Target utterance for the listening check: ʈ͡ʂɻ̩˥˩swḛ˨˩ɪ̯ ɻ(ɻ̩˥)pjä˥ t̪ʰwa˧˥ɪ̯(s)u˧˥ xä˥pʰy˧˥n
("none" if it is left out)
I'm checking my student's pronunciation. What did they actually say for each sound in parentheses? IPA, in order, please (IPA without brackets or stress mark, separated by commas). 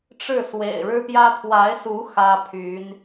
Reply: ɻ̩˥, s